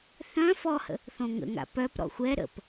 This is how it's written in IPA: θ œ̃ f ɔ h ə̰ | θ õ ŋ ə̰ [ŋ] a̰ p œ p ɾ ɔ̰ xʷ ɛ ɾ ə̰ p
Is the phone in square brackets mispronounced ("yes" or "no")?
no